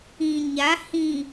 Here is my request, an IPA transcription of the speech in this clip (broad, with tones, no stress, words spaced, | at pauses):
ĩ˨ɲa˨˦ hĩ˨